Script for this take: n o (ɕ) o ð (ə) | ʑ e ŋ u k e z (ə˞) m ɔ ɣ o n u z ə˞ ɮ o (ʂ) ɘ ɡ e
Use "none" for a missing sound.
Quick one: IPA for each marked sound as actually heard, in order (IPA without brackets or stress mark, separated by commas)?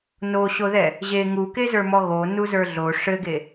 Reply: ɕ, ɛ, ə˞, ʂ